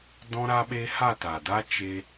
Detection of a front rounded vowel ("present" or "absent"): absent